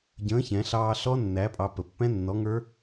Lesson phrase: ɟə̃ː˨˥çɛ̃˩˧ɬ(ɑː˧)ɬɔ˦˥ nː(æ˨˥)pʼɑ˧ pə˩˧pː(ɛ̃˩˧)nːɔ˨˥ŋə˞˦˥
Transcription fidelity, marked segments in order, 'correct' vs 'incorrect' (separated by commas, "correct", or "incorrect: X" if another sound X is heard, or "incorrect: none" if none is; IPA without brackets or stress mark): correct, correct, incorrect: ɛ̃˦˥